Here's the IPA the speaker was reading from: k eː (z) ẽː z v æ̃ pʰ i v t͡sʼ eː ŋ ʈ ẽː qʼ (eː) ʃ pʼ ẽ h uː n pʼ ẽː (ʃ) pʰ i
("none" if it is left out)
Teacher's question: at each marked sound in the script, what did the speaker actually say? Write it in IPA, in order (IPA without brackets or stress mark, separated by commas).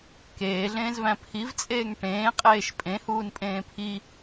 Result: ɮ, eː, none